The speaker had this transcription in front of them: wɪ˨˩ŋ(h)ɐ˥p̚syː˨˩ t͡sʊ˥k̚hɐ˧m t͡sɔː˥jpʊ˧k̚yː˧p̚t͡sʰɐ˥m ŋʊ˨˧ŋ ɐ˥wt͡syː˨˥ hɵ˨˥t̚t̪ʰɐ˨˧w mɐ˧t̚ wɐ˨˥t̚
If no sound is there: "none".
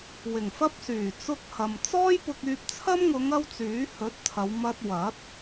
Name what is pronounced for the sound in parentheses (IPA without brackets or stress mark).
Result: f